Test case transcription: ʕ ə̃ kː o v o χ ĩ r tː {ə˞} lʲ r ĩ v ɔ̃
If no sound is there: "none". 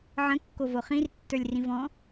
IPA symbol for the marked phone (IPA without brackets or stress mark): ə˞